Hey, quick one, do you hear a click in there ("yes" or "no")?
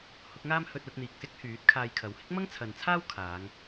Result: no